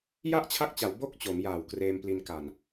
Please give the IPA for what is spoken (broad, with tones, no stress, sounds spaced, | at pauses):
j a˥˩ ʔ t͡ɕʰ a˦˥ k̚ t͡ɕ a˩˦ w b o˥˩ k̚ t͡ɕ o˩˦ m j aː˨˩ w k r eː˧ m p l i˧ n k a˨˩ n